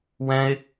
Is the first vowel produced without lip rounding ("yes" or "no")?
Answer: yes